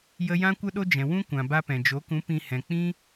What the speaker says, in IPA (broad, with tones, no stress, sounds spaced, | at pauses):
j ə˧ j ã˧ kʷ ə˧ ɗ o˧ d͡ʒ ɛ̃˨ w ũ˦ kʷ ã˨ b a˦ p ɛ̃˨ d͡ʒ o˨˦ k ũ˨˦ p ĩ˧ h ɛ̃˨ k͡p ĩ˦